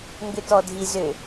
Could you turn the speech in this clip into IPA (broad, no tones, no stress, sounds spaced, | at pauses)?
ŋ ɡ ʏ t ɔ dʱ i z ʏ